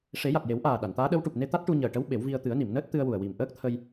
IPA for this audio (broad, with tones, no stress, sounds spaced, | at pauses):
ʂ e˨˩˦ j a˨˩ t̚ j e˨˩˦ w ʔ aː˨˩ ɗ a˨˩˨ n t̪ aː˧˥ ɗ ə˧˥ w ʈ u˨˩ p̚ n e˧ t̪ a˦˥ t̚ ʈ u˧ ɲ əː˨˩ ʈ ə˧˥ w ɓ e˨˩˦ w v i˧ ə̯ t̪ ɨ˨˩˦ ə̯ n i˨˩˨ m n əː˦˥ t̚ t̪ ɨ˧ ə̯ w u˨˩ ə̯ w i˨˩ m ʔ əː˦˥ k̚ t̪ʰ ə˧ j